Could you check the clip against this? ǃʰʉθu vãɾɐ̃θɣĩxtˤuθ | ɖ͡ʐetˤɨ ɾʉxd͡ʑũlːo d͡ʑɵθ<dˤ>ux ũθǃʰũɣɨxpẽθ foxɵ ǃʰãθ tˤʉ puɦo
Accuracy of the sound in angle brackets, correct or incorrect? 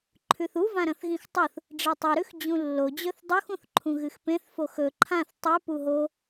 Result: correct